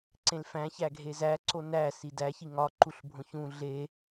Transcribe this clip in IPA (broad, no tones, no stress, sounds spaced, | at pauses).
ǀ ẽ l f æ̃ ç æ ɡʱ e z æ ǀ o n æ s i d æ ç i ŋ ɒ ǃ u ɬ bʱ õ ç ũ ɮ e